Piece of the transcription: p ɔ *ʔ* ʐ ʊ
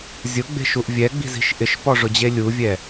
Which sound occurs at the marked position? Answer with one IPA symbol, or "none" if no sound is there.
none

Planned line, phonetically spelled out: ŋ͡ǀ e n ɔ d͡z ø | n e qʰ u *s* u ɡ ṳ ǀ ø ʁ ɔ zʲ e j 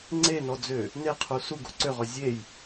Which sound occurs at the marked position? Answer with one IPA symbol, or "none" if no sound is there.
s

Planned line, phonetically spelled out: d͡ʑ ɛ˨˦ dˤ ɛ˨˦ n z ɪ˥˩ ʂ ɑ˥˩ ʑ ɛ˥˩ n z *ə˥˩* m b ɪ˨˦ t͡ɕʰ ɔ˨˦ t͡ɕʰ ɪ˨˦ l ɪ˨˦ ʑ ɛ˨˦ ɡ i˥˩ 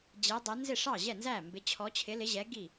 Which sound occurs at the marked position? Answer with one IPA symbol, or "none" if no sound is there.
æ˥˩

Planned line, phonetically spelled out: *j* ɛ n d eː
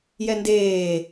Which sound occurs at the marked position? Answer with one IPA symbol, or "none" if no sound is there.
j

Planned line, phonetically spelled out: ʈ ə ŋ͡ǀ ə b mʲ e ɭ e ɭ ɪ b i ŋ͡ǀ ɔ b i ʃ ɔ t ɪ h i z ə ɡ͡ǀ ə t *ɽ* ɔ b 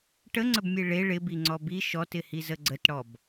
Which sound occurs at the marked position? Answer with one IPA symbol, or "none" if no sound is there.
ɽ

